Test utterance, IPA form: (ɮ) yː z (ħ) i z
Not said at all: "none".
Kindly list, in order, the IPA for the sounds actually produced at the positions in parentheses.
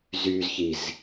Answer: z, ç

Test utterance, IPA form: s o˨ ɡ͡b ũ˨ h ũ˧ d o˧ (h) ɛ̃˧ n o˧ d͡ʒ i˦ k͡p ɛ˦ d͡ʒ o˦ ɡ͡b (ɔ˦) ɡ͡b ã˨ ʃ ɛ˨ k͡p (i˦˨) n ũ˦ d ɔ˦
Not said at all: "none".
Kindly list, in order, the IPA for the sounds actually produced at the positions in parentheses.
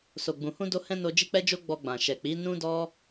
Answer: h, ɔ˧, i˨˦

